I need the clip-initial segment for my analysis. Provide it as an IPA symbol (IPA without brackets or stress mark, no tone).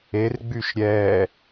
e